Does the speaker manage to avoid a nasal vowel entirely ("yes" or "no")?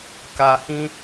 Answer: no